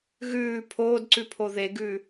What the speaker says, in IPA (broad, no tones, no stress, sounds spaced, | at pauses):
ɣ ʉː pʰ oː d ǀ ʉ pʰ o ð e ɡ ʉː